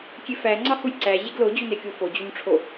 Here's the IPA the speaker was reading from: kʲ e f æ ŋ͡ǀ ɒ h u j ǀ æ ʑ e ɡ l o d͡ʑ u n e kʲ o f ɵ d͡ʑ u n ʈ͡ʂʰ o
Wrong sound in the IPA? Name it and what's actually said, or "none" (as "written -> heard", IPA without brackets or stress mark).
ɵ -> o